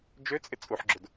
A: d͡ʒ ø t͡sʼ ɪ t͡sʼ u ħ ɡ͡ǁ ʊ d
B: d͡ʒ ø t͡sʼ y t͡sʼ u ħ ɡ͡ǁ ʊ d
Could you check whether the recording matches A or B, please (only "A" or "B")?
A